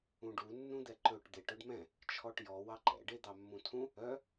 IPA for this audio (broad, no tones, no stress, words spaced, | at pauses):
ũɖu nːũd̪ɛǃɵʈ d̪eʈ œɖmɛ̃ | t͡ʃʰɔʈjɔ wɑǃɛ̰ ɖed̪ɑmːũtʰũ | œ